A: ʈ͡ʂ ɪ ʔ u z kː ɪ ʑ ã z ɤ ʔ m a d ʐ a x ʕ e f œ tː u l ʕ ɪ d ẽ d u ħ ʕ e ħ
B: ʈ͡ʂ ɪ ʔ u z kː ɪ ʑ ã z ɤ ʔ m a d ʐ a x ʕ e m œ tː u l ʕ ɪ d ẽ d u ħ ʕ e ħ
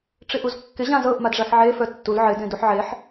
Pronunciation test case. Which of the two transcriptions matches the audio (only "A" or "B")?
A